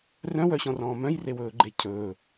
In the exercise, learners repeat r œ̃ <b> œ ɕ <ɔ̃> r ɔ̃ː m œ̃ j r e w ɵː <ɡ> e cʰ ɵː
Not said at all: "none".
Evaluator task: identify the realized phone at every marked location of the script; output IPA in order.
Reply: w, ɔ̃, ɡ͡ǃ

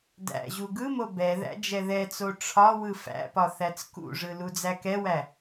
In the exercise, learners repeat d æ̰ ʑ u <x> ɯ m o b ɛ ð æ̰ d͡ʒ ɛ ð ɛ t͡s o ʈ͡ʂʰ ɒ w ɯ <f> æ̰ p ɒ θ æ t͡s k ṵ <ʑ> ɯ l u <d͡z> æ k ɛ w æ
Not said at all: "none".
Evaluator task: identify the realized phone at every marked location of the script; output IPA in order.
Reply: ɡ, f, ʐ, d͡z

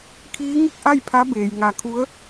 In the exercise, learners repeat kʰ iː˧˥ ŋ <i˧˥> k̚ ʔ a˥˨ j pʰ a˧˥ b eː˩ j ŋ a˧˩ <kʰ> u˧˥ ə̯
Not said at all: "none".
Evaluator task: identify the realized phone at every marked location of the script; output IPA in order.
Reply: i˥˨, kʰ

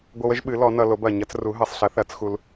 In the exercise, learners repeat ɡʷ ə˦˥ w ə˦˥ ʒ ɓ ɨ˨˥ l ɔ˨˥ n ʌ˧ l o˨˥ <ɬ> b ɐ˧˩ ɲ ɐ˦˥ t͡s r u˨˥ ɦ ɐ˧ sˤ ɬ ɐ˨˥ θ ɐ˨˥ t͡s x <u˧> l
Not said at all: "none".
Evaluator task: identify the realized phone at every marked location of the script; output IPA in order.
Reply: none, u˧

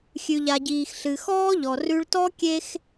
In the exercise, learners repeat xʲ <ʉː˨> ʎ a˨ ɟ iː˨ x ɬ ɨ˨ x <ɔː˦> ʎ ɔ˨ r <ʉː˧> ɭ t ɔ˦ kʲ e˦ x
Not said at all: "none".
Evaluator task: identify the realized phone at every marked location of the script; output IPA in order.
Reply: ʉ˨, ɔː˦, ʉ˧

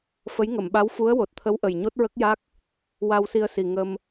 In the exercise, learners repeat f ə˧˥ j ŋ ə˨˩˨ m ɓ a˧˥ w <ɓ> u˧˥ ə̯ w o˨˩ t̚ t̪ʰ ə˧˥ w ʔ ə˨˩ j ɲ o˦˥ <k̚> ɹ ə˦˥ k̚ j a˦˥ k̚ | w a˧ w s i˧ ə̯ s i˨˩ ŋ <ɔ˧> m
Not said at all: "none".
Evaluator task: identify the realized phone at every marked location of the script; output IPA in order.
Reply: f, t̚, ə˧

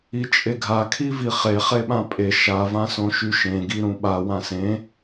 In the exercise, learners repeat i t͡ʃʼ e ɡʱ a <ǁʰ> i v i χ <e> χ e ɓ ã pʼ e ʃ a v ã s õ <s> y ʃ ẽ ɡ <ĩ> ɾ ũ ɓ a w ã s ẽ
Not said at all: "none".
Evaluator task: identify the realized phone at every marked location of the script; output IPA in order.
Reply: kʰ, e, ʃ, i

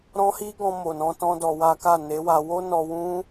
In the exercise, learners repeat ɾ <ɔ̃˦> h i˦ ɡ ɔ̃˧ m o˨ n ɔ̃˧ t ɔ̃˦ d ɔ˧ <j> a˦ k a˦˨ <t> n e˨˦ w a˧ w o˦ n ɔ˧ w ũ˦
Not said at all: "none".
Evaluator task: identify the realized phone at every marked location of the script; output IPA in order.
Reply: ɔ̃˦, w, none

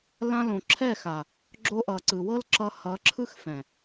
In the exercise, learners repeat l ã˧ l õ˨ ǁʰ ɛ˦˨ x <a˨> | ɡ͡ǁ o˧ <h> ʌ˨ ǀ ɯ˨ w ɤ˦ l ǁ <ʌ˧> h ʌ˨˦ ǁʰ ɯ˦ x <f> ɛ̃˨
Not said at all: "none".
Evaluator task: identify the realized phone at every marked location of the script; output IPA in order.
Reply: a˨, ʔ, ʌ˧, f

